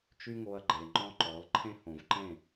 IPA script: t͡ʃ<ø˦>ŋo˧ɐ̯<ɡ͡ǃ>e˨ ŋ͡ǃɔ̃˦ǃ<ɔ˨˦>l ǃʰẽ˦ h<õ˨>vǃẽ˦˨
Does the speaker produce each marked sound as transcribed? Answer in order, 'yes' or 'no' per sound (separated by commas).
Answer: no, yes, yes, yes